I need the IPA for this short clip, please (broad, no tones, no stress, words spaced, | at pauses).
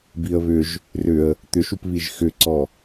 biə̯βʏʒ | rʏə̯ | t̪ʏʃupβiʒ xʏǀɔ